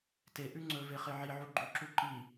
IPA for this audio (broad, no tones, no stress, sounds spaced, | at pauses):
t e ʔ ʉ ŋ͡ǀ ɵ v e χ e ʕ i ʕ u ɡ͡ǃ ʉ ǁ u ǃ i